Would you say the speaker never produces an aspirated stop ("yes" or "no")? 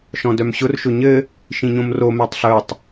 yes